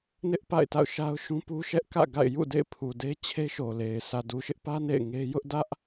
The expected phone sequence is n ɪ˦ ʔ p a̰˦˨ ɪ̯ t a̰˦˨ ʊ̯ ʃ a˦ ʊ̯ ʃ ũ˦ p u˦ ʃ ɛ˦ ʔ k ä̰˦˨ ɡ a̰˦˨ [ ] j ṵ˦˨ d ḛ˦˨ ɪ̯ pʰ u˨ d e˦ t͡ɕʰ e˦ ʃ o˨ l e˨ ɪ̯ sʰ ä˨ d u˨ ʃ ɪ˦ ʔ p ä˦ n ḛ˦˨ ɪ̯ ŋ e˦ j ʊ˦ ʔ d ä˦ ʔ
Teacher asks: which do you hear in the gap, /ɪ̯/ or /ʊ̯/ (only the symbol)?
ɪ̯